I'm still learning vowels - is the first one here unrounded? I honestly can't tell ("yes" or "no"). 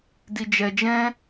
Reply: yes